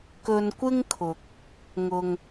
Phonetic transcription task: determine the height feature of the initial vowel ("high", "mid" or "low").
mid